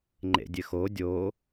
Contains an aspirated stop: no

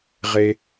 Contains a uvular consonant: yes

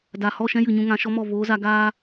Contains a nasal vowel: yes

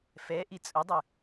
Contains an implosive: no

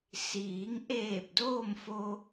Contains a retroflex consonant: no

